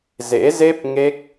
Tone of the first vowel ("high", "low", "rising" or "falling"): rising